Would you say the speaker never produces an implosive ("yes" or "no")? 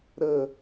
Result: yes